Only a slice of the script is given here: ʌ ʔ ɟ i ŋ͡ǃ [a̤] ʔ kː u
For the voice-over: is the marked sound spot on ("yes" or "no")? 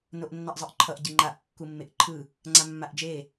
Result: no